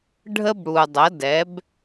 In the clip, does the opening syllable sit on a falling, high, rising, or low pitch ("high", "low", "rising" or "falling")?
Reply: high